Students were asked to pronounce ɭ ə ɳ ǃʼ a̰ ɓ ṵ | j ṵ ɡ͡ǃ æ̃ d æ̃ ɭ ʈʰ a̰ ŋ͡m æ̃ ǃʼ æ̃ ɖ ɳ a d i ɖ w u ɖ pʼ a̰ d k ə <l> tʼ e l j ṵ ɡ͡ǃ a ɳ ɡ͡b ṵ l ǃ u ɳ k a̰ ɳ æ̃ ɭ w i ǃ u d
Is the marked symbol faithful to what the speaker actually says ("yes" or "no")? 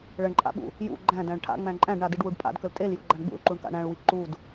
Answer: yes